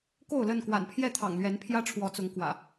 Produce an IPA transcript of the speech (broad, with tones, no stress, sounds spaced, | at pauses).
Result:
k o˥˨ ʊ̯ l ə˥˨ n k w a̰˨˩ n pʰ j ɛ˥˨ t̪ʰ ɑ̰˨˩ ŋ l ɥ ɛ˨˦ n pʰ j ä˦ ʈ͡ʂʰ w ɔ˨˦ t͡s ʊ˨˦ ŋ k w ä̰˨˩